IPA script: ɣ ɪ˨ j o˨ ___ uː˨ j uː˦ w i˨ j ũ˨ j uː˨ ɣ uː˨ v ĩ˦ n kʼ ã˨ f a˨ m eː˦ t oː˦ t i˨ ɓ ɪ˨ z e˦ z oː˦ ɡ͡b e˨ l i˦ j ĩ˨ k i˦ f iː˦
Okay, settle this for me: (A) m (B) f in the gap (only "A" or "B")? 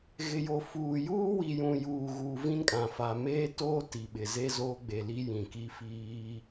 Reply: B